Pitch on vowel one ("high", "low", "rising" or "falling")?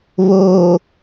low